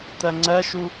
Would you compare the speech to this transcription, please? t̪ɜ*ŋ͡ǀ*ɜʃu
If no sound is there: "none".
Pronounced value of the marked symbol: ŋ͡ǀ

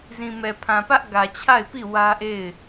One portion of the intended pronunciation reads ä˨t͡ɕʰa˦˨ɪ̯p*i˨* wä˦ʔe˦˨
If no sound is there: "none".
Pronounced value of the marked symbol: i˦˨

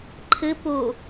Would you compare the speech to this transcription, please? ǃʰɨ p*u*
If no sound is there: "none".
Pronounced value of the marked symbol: u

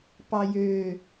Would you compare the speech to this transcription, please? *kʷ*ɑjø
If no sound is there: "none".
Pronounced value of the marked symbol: p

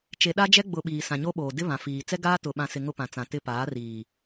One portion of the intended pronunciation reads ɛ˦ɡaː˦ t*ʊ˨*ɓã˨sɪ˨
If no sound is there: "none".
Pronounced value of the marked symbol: ʊ˨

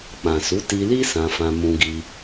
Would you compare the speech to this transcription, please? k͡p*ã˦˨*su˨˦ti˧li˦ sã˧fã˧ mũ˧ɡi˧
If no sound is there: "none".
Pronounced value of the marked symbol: ã˨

